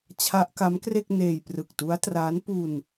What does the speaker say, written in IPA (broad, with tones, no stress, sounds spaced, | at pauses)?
t͡ɕʰ a˦˥ ʔ k a˦˥ m k r e˥˩ k̚ n eː˧ j p r ɯ˨˩ k̚ t u˦˥ a̯ t r aː˦˥ n p u˧ n